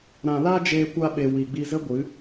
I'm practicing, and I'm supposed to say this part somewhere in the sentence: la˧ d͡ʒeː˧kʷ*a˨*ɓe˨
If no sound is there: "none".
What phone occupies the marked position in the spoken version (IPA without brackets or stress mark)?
a˧